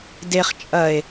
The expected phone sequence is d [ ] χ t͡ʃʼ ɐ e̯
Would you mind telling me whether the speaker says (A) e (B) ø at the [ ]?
A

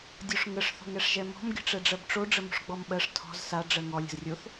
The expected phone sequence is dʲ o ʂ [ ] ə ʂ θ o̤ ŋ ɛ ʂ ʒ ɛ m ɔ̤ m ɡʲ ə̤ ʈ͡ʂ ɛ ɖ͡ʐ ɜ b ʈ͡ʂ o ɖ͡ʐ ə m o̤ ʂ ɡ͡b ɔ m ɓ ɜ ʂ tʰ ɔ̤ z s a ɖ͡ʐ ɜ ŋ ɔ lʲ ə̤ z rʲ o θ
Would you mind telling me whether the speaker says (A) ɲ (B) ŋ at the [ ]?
B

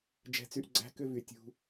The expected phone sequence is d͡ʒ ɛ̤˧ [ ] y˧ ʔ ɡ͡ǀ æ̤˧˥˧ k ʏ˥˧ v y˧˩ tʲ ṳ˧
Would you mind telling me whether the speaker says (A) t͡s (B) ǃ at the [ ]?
A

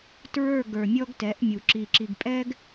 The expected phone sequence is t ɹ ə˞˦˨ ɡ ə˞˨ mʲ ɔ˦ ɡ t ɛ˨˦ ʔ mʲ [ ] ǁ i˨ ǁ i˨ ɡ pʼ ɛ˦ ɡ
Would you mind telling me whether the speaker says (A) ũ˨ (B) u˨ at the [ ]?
B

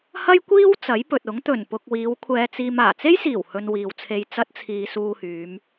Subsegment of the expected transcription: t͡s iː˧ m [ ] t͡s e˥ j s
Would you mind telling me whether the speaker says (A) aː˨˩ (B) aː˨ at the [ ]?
A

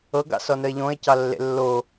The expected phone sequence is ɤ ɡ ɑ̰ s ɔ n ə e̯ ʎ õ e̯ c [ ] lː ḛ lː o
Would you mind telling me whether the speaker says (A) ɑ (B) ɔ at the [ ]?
A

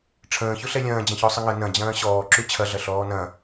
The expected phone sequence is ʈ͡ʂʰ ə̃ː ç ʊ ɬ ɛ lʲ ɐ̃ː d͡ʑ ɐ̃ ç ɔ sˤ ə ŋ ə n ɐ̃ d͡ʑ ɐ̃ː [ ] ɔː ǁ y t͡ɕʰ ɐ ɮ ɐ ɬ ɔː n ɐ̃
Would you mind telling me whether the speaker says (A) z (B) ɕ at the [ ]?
B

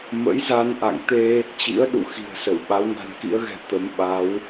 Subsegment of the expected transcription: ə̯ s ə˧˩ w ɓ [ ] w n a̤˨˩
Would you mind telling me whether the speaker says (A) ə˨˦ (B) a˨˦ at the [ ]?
B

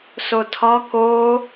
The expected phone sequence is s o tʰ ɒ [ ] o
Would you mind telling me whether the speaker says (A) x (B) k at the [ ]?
B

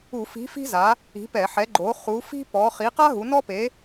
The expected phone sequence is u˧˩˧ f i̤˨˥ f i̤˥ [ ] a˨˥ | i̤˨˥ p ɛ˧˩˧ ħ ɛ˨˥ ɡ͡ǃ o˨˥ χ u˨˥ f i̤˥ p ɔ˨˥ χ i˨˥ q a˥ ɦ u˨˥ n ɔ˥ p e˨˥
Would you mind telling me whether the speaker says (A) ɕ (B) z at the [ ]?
B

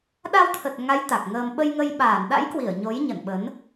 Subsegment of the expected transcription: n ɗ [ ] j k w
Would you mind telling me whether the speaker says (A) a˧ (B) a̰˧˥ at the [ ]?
B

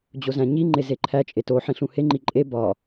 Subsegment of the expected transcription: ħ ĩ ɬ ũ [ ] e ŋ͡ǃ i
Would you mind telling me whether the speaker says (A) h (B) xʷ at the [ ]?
A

